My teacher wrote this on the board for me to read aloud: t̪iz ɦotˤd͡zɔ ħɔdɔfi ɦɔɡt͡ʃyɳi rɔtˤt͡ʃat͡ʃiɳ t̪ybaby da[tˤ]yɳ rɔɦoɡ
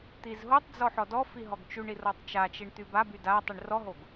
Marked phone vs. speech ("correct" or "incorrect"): correct